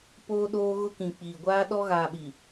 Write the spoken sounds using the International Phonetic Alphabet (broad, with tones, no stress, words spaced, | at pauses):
poː˦ɗoː˦ɣʊ˦ kĩ˨ k͡piː˨ɡʷaː˦ɗɔ˦ ɣaː˨ɓi˨